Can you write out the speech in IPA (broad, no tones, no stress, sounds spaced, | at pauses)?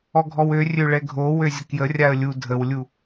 ɔ ɡʱ ɔ w ø rʲ ø ɭ ɛ ɡʱ o w ø zʲ ə k j ə rʲ a ə̯ lʲ u dʱ ə w lʲ u